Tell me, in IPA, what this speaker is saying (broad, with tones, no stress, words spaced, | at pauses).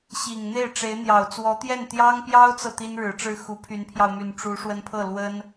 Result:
ɕi˨˩ŋn̪e˥˩ɪ̯ʈ͡ʂe˧˥ɪ̯n̪jɑ˨˩ʊ̯ t͡swɔ˧˥t̪jɛ˥˩n t̪jɑ˥ŋpjɑ˥ʊ̯t͡sɤ˨ t̪i˥nɻɻ̩˨˩ʈ͡ʂɻ̩˥˩ xu˧˥pʰy˧˥npʰjɑ˧ʊ̯my˨˩n ʈ͡ʂu˧˥ ʂwə˥npʰɤ˥˩ lwə˥n